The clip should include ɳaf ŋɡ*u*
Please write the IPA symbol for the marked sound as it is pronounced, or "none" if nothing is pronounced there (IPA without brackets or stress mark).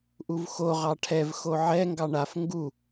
u